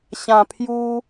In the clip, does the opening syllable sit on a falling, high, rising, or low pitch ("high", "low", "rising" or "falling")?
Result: low